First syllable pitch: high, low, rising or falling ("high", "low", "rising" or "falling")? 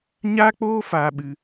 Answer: high